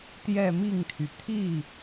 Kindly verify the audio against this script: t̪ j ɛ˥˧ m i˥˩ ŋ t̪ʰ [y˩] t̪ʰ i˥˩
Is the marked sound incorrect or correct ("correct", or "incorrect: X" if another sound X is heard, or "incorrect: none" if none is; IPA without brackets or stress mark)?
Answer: correct